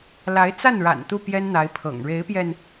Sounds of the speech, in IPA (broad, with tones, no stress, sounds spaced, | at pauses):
l a˧˥ ɪ̯ t͡s a˥˩ n ɻ a̰˨˩ n t̪ u˥˩ p j ɛ˥ n n̪ a˧˥ ɪ̯ pʰ ɤ̰˨˩ ŋ ɻ e˧˥ ɪ̯ p j ɛ˧ n